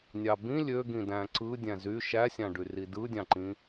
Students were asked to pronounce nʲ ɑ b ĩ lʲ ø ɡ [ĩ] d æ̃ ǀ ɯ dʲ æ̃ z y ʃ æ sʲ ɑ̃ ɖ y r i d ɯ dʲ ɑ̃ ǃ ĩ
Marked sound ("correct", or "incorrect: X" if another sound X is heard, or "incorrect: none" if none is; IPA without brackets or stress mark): correct